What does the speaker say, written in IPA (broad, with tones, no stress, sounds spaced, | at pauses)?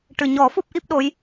ʈ ɨ˨˩ ɲ ɔ˨˩˦ f u˦˥ p̚ ʔ i˦˥ p̚ ɗ o˧˥ j